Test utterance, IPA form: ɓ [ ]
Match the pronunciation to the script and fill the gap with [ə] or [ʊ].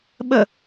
ə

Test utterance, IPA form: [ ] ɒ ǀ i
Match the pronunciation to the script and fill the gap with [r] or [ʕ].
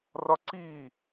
r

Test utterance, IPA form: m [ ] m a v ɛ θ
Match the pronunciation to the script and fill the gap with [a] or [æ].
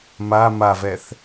a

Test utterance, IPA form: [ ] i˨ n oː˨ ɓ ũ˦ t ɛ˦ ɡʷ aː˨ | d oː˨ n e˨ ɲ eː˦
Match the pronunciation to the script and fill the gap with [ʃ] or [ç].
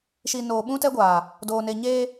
ʃ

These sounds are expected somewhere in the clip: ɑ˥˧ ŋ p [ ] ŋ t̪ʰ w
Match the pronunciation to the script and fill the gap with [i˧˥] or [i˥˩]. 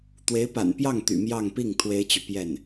i˥˩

